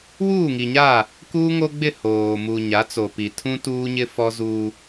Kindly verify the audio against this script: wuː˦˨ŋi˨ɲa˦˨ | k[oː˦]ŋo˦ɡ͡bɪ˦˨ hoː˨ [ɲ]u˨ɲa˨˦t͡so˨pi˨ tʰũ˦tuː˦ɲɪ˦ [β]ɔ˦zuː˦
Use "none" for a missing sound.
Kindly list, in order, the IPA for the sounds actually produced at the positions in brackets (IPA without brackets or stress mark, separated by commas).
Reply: uː˦, m, f